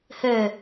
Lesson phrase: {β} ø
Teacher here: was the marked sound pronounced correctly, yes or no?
no